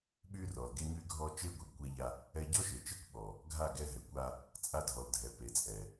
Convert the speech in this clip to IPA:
ɓy˦rɔ˨l ɡe˧ɲy˧ɡʱɔ˧ t͡ʃe˦ɡʷe˨ɡkʷɛ˧ʎa˧ | ɛ˦ ɟɔ˦ʃe˨t͡ʃe˦kʷɓɔ˨ | ɡʱa˦˨ ɡɛ˧ɦɛ˨kʷa˧ | t͡sʼa˧dʱɔ˨ldʱɛ˨ pe˨t͡sʼɛ˨

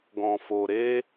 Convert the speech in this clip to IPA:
ɡɔ̃˧fo˧ ɾe˦

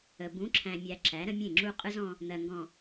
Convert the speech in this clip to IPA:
ə˨ bũ˨˦ǁʰæ̃˨mʲæ˨ ǁæ˨˦ɾə̃˦mʲẽ˦˨ ŋ͡ǁu˦ qʼɯ˦zɔ̃˦ | n̪ɜ˨ŋɡɔ̃˨

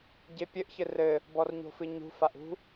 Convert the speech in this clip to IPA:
ɟepʲɘʔ çɘrɘ | bɔrɲo̤fɨɲṳ faʔṳ

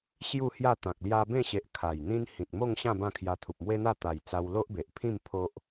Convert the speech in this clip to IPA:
ɕju˥˧ hja˥˧ t̪ã˨k̚lja˦ bẽ˥˧ɕe˨ʔ kʰa˨˩jn̪ĩ˦n hĩ˨t̚mo˥˧ŋɕã˥˧ bã˥˧kʰja˧ t̪ʰu˨p̚mwe˦n̪a˥˧ t̪a˨˩jt͡sa˧w lo˦ʔbe˨ʔpʰĩ˥˧m pʰo˦ʔ

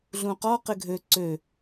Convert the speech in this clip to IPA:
ɮũqɔ qɪɡʱø ǀø

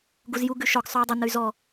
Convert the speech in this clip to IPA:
ɡuzju ɡʉʃɔɡ sˤʉi̯dˤə nəy̯zɔ

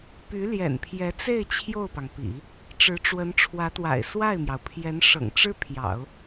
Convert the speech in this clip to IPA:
py˧˥ljɛ̰˨˩npʰjɛ˧˥t͡se˥˧ɪ̯ t͡ɕʰjo˥˩ʊ̯pɑ˩ŋpḭ˨˩˦ | ʈ͡ʂɻ̩˧˥ʈ͡ʂwə˧˥nʈ͡ʂʰwä˧˥t̪wa̰˨˩ɪ̯ swa˥˩ɪ̯mjɑ˩ʊ̯pʰjɛ˧˥n ʂɤ̰˨˩ŋʈ͡ʂɻ̩˥ pʰjɑ̰˨˩˦ʊ̯

